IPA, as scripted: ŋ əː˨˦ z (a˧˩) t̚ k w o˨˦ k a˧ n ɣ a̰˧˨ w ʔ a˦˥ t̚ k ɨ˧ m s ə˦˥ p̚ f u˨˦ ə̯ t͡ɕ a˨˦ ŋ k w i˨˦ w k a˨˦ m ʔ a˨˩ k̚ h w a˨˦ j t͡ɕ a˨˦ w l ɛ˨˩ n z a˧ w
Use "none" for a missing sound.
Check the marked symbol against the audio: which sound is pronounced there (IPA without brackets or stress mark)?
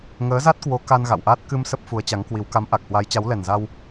a˦˥